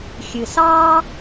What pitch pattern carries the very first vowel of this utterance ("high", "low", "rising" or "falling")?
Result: low